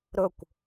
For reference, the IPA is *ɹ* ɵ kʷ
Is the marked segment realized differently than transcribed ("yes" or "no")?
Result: yes